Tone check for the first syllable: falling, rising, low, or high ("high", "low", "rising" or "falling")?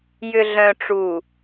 low